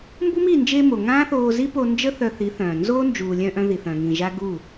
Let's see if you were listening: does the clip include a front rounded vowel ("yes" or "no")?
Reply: yes